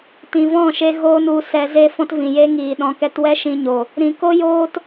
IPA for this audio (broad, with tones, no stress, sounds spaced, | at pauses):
t ĩ˨ v ɔ̃˦˨ ʃ e˧ ɣ oː˧ n u˨˦ s ɛ˧ z e˦ f ɔ̃˦ t v ĩ˨ j e˦ ŋ iː˨ ɗ ɔ̃˧ k ɛ˦ t w ɛ˦ ʃ ĩ˧ ɲ o˨ | ɾ ĩ˨ k o˦ j oː˦ t